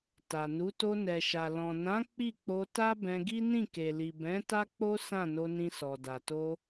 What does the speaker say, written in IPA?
t a˨ n u˨˦ t o˧ n ɛ˨ ʃ a˨ l ɔ̃˨ n ã˨˦ k͡p i˦˨ k͡p o˧ t a˦ b ɛ̃˧ ɡ i˦ n ĩ˦˨ k e˨ l i˨ b ɛ̃˨˦ t a˦ k͡p o˦ s ã˦˨ n o˧ n ĩ˧ s ɔ˨ d a˨ t o˧

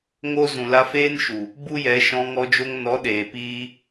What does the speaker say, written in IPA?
ŋ o˦ z ũ˨ l a˧ f eː˦ n ʃ u˨ | b u˦ j ɛ˨˦ ʃ ɔ̃˧ ŋ ɔ˧ d͡ʒ o˧ ŋ n ɔ˨˦ ɗ eː˨ p iː˧

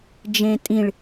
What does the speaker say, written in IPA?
d͡ʒ ẽ tʼ ĩ ɭ

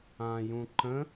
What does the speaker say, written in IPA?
ã j ũ ǃ ə̃

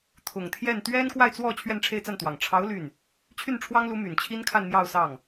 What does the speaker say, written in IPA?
t̪ʰ ʊ˨˩ ŋ t̪ʰ j ɛ˥˩ n t̪ ɥ ɛ˥ n k w a˥˧ ɪ̯ t͡s w ɔ˥˧ t͡ɕʰ ɥ ɛ˥˧ n ʈ͡ʂʰ e˥˧ ɪ̯ t͡s a˥˩ n t̪ w ɑ˨˩ ŋ ʈ͡ʂʰ ɑ˧˥ ʊ̯ l y˥˩ n | t͡ɕʰ y˥˩ n ʈ͡ʂʰ w ɑ˥ ŋ l u˧˥ m y˨˩ n t͡ɕʰ i˥ n kʰ a˥˧ n m j ɑ˥˧ ʊ̯ s ɑ˥˩ ŋ

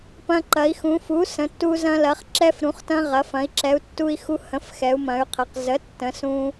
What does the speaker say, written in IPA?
p ɐ̃˧ ǃ ɐ˩˧ i̯ x ũ˩˧ f u˩˥ s ə̃˩˥ tː u˧ z ɐ̃˧ l ɐ˩˧ χ ǁ ɛ˧ f ɾ ũ˩˧ χ t ɐ̃˧ ʁ ɐ˩˧ f ɐ̃˩˧ i̯ ǁ ɛ˩˧ u̯ tː u˧ i̯ x u˧ h ə̃˩˥ f x ɛ˩˧ u̯ m ɐ̃˩˧ y̯ qʰ ɐ˩˧ q z ə˩˥ tː ə̃˩˧ s ũ˧

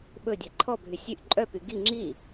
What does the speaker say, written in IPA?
ɓ ɵ dʲ æ ǃʰ ɔ bʱ y sʲ y ʔ ǃʼ œ p y ɡ i ŋ͡ǁ i

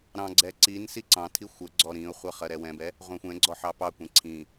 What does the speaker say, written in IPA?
ɾ ɑ̃ ɡ͡ǀ ɛ ǀ i n s i ǀ ɑ̃ tʰ i xʷ ə ɡ͡ǀ ɔ ɾ ĩ ʊ̯ χʷ ɜ χ ɜ ɾ ɛ w ɛ̃ b ɛ | ʁʷ ɛ̃ xʷ ɛ̃ ɡ͡ǀ ɔ ħ ɑ p ɑ kʷ ĩ ǀʰ ĩ

